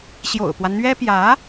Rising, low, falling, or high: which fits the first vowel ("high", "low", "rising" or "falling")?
low